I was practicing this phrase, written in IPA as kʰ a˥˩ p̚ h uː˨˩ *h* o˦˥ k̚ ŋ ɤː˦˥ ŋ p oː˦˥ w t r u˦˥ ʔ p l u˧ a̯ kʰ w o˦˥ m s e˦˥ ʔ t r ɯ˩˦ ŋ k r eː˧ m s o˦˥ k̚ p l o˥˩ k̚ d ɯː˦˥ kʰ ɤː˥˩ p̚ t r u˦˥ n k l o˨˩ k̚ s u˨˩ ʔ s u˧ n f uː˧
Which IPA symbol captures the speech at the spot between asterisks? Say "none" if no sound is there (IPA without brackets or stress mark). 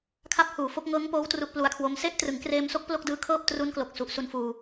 f